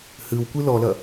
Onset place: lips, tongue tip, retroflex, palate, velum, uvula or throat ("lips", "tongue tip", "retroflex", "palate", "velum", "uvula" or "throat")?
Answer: throat